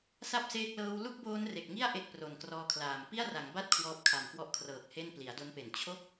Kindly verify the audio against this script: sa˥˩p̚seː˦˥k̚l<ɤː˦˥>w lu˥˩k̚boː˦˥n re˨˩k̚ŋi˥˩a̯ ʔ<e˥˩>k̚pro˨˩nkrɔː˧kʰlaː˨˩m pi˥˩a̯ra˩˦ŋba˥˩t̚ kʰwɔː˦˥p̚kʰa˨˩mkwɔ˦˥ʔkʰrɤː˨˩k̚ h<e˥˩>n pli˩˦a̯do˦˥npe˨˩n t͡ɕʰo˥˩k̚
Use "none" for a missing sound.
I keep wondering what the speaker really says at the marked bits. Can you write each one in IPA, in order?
ɤː˦˥, e˥˩, e˥˩

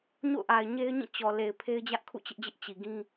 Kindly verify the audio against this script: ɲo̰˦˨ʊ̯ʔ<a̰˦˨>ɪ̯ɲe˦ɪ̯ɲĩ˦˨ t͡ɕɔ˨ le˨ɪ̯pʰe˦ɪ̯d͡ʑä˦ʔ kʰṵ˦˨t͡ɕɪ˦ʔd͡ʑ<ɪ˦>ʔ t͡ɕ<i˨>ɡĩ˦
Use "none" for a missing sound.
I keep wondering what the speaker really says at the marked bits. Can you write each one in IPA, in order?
a˨, ɪ˦, i˨

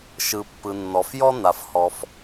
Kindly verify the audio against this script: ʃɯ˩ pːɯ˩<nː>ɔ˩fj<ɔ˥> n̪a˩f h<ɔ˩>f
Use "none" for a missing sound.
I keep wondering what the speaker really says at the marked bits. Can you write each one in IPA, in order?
nː, ɔ˥, ɔ˩

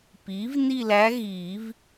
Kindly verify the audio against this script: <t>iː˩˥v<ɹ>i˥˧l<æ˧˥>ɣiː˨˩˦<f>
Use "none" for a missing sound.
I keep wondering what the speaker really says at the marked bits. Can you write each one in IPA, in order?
p, n, æ˧˥, v

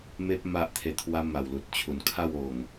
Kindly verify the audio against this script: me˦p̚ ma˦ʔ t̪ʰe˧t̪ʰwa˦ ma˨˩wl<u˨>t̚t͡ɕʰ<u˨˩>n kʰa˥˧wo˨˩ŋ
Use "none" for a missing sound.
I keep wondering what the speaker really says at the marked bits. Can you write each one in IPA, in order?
u˨, u˨˩

